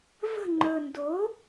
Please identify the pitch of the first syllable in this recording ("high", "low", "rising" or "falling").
falling